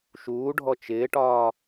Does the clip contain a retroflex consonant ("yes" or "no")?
yes